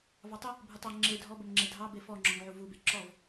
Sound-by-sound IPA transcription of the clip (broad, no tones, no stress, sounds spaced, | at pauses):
v ɑ tˤ ə | bʱ u tˤ ɑ ŋ͡ǁ e dʱ ɔ b ə m ŋ͡ǁ e dʱ ɑ b e f ɔ ŋ͡ǁ ɔ ŋ ʕ u v u b e ǁ ɔ v